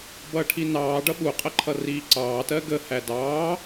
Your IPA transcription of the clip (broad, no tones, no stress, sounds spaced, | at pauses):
b ʌː ʈʰ i n ɑː ɖ ʌ ɓ u qʼ ə ǃʰ ʌ r iː ǀ ɑː t ɜ ɡ ə h æ d ɑː